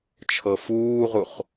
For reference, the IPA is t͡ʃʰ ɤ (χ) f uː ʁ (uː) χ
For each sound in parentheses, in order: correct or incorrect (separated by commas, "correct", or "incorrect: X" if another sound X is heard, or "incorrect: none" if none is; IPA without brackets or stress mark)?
incorrect: none, incorrect: u